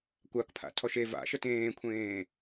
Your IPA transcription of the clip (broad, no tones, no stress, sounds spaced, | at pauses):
kʷ a k pʰ a̰ tʰ ɔ ʃ e v a̰ ʃ ə t ẽː kʷʰ ẽː